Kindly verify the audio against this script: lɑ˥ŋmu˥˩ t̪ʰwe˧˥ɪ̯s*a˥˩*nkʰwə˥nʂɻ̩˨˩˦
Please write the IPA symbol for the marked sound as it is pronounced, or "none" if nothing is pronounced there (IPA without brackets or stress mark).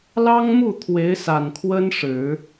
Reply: a˨˩